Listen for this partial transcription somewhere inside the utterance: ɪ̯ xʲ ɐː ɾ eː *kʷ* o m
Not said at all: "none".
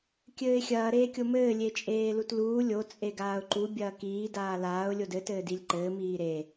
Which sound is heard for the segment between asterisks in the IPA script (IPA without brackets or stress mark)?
kʲ